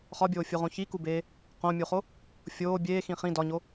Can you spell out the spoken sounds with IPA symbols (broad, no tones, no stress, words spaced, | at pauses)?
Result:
χɒbʲoːfʲuʁõ çikubeː | qõmʲuχo | fʲoː bʲeːxĩ χĩ dɒɲo